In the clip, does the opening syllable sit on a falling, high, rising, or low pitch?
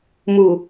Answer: low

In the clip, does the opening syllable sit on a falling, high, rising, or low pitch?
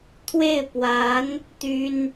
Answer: falling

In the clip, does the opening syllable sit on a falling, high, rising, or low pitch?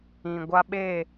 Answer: low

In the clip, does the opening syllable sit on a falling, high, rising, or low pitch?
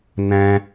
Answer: high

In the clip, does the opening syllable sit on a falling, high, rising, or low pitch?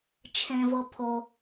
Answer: low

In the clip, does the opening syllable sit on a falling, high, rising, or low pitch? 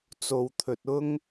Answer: low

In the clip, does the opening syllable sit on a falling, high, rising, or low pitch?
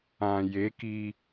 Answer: low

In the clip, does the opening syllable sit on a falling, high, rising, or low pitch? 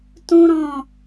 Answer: high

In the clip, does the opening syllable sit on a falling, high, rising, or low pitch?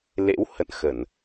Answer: rising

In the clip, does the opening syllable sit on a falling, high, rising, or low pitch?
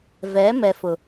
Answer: rising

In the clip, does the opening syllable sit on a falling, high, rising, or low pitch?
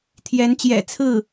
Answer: rising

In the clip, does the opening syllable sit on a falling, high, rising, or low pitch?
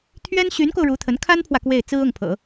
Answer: high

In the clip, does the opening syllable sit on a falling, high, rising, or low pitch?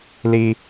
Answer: high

